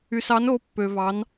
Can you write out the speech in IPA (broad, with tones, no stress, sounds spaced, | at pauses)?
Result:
y˨ s ɑ˨˥ n o˨˥ pː ø˨ v ɑ˨˥ n